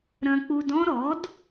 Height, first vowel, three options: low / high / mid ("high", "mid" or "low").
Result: low